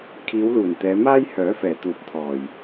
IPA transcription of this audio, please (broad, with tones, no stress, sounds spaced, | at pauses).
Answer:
kʰ iː˨˧ w l uː˨˩ n t̪ ɛː˨˧ m aː˥ j h œː˨˥ f ɛː˨˩ t̪ uː˨˥ p̚ t̪ʰ ɔː˨˩ j